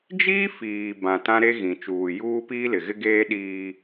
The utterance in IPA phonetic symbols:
d͡ʒiː˦ fiː˨ bã˨tã˦ɾe˦ ɣĩ˨t͡ʃuː˨juː˦ piː˦lɪ˨ɣɪ˦ɡeː˦ ɗiː˦

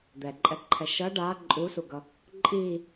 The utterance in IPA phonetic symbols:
d̪ɛǃʼɛǃʰɛ ʃʌ ɖa ǃʼusuɡʌ | ǃʼi

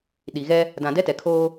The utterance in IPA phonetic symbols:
ɗi˨ɣɛ˦ | dã˨dɛ˦tɛ˨kʰoː˦

